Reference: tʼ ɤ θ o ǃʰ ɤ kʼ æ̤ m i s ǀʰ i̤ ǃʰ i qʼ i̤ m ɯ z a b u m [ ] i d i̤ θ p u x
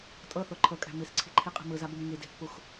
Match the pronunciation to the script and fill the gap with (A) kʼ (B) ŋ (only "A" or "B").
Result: B